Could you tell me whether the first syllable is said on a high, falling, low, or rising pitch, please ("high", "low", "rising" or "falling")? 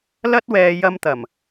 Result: high